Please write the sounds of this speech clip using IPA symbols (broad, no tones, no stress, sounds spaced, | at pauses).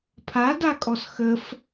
pʰ a d a kʼ ɔ s x ə f